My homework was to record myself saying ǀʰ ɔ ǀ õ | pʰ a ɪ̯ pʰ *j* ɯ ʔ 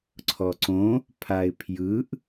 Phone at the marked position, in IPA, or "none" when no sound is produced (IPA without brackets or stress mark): j